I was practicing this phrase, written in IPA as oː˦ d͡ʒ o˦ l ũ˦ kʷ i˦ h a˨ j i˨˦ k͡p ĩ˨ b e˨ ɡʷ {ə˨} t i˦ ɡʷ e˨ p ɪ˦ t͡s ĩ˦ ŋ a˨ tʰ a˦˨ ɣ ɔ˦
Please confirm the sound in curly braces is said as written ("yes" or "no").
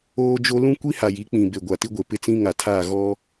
no